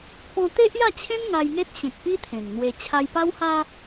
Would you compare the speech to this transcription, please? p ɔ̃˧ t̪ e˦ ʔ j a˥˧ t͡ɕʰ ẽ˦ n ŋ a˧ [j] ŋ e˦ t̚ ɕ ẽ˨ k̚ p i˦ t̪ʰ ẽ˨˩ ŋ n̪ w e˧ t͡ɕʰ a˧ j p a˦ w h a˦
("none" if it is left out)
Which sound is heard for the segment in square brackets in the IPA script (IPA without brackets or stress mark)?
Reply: j